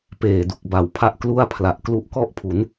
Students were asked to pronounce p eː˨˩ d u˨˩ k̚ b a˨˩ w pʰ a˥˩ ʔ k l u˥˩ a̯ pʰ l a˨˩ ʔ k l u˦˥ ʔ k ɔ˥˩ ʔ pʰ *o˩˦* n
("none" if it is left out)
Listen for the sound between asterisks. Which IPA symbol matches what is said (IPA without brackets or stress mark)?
u˩˦